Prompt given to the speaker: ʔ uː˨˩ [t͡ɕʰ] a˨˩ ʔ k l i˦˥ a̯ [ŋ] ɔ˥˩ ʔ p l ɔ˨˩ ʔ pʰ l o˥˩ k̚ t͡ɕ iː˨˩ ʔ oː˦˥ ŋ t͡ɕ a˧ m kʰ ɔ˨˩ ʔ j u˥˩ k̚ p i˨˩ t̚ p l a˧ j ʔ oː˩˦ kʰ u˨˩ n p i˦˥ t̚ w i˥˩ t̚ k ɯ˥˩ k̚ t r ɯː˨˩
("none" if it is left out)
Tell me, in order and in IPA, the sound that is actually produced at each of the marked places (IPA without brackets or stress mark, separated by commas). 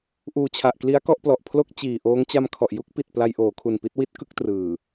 t͡ɕʰ, k